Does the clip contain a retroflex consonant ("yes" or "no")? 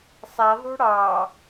yes